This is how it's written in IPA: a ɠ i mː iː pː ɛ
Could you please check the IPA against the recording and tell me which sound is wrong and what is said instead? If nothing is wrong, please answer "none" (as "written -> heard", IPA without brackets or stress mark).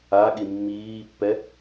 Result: none